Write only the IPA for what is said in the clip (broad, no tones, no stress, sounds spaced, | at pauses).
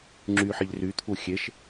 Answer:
ŋ͡ǁ y ħ i ʎ r y t̪ʰ u xʲ e ʃ